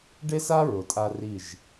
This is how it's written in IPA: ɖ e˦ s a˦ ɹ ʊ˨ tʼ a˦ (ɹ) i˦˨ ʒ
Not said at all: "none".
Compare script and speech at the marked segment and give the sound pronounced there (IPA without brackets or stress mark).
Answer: r